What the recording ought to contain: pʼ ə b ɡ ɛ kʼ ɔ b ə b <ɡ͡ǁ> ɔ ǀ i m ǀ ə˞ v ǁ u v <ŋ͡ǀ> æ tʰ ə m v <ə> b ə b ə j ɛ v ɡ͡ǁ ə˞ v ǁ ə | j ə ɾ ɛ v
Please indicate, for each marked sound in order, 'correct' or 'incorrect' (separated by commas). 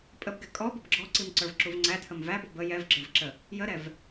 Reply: correct, correct, incorrect